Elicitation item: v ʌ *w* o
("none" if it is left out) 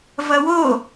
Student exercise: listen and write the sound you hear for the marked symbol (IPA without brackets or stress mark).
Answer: w